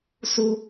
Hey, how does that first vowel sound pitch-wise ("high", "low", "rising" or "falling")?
high